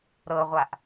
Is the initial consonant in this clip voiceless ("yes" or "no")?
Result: no